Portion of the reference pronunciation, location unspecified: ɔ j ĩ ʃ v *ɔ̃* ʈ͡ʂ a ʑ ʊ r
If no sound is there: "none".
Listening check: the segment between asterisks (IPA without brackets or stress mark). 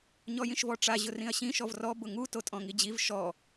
ɔ